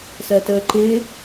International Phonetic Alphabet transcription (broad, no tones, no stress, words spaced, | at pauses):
sɜtəːǃɪ